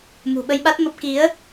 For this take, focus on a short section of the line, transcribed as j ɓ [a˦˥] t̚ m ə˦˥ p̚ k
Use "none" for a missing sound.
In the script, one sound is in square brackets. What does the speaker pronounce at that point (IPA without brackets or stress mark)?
a˦˥